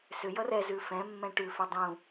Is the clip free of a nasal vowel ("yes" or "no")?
no